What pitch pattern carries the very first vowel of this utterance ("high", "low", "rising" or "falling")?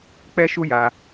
high